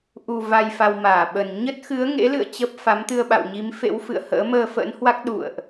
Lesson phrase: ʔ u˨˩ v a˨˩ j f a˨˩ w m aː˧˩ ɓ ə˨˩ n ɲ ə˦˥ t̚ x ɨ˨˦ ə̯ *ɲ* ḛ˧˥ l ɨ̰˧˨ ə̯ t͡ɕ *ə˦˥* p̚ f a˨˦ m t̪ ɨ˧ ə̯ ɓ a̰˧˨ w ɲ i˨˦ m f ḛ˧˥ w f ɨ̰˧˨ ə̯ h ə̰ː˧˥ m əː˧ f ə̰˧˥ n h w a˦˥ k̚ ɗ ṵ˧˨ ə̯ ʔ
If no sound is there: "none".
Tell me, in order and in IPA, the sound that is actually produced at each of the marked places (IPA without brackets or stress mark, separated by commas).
ŋ, ə˦˥